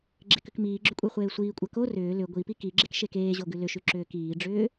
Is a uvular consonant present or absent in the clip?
present